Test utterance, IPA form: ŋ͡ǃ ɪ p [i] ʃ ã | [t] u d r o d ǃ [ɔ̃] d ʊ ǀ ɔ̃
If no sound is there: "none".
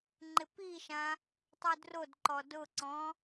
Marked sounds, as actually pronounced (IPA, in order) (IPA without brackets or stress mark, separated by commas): i, tˤ, ɔ